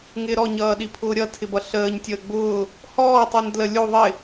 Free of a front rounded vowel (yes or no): yes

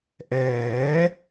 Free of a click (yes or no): yes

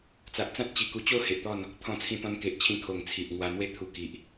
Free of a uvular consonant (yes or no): yes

